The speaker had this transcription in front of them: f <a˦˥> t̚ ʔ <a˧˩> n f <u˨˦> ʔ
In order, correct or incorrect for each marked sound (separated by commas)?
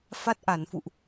correct, correct, incorrect